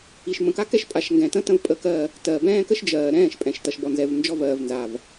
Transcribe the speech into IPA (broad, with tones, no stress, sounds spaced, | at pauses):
i˨ ʃ m ə̃˨ k a˦ k ɛ˦ ʃ pʼ a˨ ʃ ŋ ɡ ɛ̃˨ t ə̃˦ t ə̃˦ v pʼ ə˦ k ɜ˦˨ | t ɜ˨ b ɛ̃ː˦ k ə˦ ʃ d͡ʒ ɜː˨ ɾ ɛ̃ː˦˨ ʃ pʼ ɛ̃˨ ʃ t ʌ˨ ʃ b ɔ˨ n z ɛ˨ v n d͡ʒ ɔ˦ v ɜː˨ v n z a˨ v